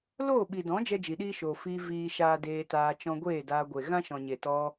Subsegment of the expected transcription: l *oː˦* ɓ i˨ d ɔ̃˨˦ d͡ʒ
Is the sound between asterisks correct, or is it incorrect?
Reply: incorrect